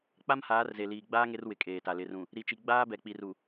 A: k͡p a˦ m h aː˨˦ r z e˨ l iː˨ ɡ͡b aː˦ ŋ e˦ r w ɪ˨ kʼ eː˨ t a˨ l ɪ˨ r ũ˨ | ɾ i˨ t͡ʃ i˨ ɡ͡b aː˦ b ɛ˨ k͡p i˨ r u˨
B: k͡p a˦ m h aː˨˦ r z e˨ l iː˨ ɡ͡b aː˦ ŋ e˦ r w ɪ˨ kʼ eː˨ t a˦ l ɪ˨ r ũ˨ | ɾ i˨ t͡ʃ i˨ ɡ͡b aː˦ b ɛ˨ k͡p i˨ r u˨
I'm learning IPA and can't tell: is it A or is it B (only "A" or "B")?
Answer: A